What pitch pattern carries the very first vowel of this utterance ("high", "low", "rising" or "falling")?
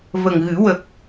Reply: low